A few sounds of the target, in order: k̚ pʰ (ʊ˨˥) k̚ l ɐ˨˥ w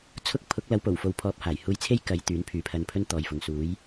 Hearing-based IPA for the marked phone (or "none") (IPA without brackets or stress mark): ʊ˨˥